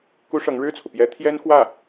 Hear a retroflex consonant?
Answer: yes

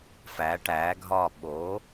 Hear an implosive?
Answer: yes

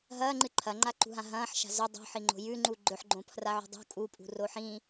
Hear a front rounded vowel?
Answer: no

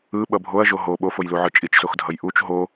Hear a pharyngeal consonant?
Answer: yes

